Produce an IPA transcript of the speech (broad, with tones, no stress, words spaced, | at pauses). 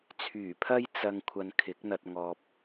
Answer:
t͡sʰyː˨˩pʰɐ˧j t͡sɐ˨ŋ kʷʰɐ˧nkʰɪ˨˥k̚n̪ɐ˧t̚ ŋɔː˨p̚